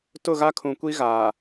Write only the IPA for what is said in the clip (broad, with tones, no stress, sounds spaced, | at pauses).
t ʊ˦˨ ɣ a˦ kʰ ũ˨ kʷ i˦ ɣ aː˨